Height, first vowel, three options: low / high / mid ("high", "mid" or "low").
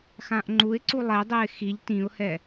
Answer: low